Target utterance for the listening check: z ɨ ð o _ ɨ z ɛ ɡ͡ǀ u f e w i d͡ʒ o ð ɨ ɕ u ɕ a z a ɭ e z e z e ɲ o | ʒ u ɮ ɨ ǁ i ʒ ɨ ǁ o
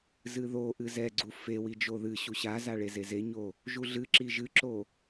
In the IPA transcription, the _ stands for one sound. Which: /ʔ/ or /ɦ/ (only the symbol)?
ʔ